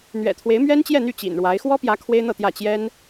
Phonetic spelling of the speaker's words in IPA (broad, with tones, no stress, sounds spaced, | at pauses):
n̪ ɥ ɛ̰˨˩ t̪ʰ w e˧˥ ɪ̯ m ɥ ɛ˥ n t͡ɕ j ɛ˥˧ n̪ y˥˩ t͡ɕ ḭ˨˩ n ɻ w a˧˥ ɪ̯ x w ɔ˥ p j ä˧˥ kʰ w e˥ ɪ̯ n̪ ɤ˥˧ t̪ j ä˥˩ t͡ɕ j ɛ˥ n